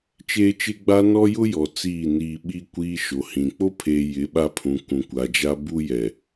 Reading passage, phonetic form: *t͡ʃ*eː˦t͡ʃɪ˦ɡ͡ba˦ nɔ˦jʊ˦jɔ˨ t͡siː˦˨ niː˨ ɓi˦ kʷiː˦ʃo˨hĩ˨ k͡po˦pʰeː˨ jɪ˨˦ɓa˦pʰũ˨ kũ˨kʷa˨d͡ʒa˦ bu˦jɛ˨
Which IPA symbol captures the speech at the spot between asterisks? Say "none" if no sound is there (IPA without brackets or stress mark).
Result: t͡ʃ